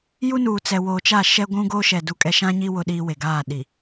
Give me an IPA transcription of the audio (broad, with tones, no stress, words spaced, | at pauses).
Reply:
ju˦nuː˨ t͡sɛ˨woː˨t͡ʃa˦˨ ʃɛ˦ɡʷũ˦ɡo˦ ʃɛ˨ du˦kʼɛ˦ ʃã˦ɲi˦ wʊ˦ɗiː˦we˨ ɡaː˦˨ɗi˨